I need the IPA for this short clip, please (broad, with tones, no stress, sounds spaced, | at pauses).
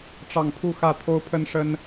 ʈ͡ʂ ɑ˥˧ ŋ pʰ u˥˧ x ä˥˩ t̪ʰ o˥ ʊ̯ pʰ ə˥ n ʂ ə˥ n